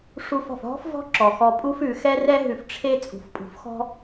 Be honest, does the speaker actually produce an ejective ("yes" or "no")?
yes